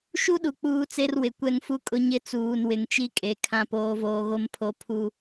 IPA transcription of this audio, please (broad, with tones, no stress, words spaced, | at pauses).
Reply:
ʃu˦ɗu˨ k͡puː˦t͡se˦rwɪ˨ kʷɛ˦ŋfu˦kʼʊ˦ ɲɪ˦t͡suː˨nwɪ˨ŋ t͡ʃi˦kʼe˨ kʰã˦poː˦voː˦ ɣo˦mpʰo˦ pʰu˦